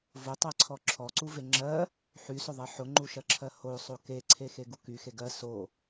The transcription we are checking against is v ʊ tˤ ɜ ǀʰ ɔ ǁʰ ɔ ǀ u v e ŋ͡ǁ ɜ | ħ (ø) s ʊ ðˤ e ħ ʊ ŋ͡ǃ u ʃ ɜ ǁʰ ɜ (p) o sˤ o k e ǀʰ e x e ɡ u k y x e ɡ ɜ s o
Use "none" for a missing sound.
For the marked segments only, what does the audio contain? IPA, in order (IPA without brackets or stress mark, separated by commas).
y, h